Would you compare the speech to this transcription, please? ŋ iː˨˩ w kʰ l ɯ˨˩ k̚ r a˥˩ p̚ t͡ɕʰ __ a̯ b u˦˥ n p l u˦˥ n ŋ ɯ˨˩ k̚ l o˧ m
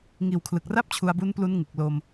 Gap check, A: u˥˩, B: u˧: B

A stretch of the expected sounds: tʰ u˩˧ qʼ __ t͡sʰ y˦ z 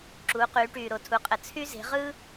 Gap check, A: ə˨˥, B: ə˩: B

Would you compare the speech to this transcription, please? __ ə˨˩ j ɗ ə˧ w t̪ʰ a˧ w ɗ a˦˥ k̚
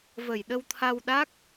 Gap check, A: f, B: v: B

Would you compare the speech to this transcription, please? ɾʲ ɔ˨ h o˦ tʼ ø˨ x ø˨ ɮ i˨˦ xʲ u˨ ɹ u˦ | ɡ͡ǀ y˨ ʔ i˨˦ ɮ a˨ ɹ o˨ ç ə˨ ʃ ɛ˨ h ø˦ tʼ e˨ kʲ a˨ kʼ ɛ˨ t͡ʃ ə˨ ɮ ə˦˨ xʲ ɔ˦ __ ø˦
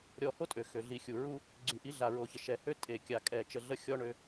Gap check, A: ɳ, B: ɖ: A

